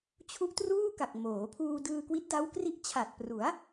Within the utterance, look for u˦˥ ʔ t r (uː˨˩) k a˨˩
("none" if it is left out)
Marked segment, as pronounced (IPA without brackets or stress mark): uː˥˩